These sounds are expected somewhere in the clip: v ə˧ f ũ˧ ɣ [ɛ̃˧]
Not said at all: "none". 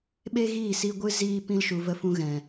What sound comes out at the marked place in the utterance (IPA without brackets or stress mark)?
ɛ̃˨